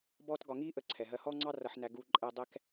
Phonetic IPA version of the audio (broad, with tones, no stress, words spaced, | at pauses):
bɔː˥tɡɒ˧ ŋiː˥ʔə˧ ǀʰɛ˩ɦɜ˧ hɔː˥ŋ͡ǀɑ˥ rʌ˧ħnæ˧ ɡuː˧ ǃʼɛ˧ dˤɛ˥k